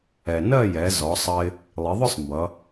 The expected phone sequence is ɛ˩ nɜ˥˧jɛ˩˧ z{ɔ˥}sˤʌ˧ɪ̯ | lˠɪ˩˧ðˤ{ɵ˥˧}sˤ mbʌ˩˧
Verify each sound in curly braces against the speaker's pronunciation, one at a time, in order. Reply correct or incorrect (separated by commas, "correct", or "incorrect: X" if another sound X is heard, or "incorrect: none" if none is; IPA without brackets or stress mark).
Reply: incorrect: ɔ˩˧, incorrect: ʊ˥˧